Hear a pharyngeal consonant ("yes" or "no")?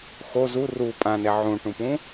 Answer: yes